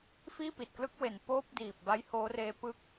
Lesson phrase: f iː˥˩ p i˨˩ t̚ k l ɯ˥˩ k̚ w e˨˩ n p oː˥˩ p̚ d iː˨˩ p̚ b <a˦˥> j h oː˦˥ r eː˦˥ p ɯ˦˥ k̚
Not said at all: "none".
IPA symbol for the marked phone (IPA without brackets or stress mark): a˦˥